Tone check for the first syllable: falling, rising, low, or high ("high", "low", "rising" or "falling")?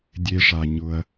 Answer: low